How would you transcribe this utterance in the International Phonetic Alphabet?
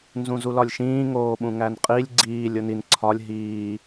nzũzulɒlʲʃĩː ŋoːɓũŋænqʼilʲ ɡ͡ǀiːlʲ onin ǀʰɒlʲ ɦiː

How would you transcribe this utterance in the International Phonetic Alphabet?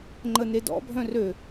ŋ͡ǃənedɔ̰ bʱœ̃rø

